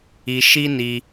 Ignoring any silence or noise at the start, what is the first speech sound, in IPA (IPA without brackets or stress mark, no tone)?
i